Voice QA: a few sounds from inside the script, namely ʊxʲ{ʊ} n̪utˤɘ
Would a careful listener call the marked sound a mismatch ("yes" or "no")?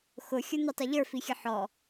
no